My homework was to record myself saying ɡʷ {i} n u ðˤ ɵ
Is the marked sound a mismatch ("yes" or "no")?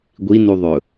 no